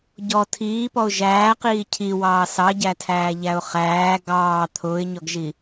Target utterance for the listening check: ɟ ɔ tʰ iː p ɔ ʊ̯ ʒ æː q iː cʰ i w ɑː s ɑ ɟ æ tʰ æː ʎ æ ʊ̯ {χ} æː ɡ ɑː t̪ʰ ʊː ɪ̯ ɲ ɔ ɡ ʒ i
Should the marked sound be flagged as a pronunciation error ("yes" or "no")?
no